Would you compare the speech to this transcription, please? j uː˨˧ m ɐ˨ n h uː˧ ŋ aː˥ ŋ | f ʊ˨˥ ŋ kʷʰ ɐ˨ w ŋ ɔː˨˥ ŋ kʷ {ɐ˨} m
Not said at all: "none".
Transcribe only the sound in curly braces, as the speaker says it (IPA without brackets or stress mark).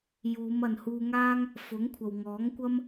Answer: ɐ˥